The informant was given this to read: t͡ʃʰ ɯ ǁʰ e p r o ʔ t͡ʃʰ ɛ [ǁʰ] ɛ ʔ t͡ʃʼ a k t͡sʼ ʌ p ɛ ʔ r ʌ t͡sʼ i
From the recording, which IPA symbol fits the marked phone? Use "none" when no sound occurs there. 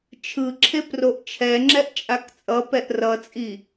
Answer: ŋ͡ǁ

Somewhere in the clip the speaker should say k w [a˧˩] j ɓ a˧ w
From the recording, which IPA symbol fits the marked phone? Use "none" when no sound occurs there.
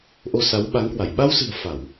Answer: a˧˩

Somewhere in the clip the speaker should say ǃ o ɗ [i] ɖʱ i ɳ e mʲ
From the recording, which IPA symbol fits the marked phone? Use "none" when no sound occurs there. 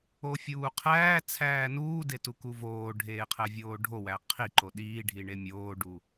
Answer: iː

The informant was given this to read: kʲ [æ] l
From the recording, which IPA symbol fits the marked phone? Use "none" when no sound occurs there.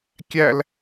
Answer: æ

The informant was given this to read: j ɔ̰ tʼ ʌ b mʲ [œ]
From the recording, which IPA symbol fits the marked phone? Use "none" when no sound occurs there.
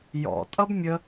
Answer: ə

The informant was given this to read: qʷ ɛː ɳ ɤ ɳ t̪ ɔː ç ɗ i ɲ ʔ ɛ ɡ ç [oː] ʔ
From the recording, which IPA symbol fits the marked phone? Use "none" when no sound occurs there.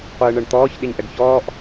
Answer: ɔː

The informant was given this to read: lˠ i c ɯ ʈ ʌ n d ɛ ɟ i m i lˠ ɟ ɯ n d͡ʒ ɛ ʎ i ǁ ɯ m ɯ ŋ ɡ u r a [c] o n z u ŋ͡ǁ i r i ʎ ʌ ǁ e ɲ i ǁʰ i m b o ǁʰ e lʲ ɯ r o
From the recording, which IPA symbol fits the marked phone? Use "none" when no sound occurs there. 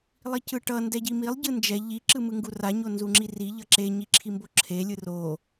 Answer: ɲ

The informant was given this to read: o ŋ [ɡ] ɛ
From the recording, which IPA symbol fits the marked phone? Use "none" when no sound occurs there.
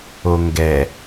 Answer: ɡ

